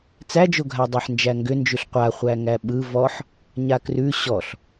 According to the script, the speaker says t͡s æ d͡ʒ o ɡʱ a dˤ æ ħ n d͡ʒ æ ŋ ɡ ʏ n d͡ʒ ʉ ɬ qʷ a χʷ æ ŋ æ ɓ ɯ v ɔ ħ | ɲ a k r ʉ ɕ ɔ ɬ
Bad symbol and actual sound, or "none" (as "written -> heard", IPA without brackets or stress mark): none